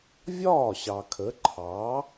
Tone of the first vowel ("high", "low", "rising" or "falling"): falling